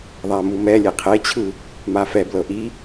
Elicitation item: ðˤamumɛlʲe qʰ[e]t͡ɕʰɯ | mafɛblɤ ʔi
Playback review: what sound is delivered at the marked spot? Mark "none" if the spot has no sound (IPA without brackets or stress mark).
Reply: e